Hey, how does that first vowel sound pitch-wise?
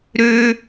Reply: high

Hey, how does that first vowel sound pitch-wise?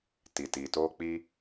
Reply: low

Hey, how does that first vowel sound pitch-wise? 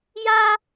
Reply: high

